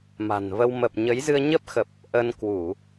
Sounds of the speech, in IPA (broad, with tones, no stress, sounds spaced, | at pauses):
m a̤˨˩ n v ə˧ w m ə˨˩ p̚ ɲ ə˨˦ j z ɨ˧ ə̯ ɲ ə˦˥ p̚ x ə˨˩ p̚ | ʔ ə˧ n k w u˧˩˨